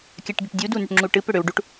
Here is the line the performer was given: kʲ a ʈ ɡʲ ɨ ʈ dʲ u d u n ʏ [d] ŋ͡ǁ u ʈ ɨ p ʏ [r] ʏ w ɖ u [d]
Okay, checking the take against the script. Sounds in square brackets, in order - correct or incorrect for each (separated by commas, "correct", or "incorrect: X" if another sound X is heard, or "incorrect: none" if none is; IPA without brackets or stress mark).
incorrect: ʈ, incorrect: ɽ, incorrect: ʈ